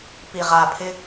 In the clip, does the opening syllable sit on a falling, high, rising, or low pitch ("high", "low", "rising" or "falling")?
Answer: low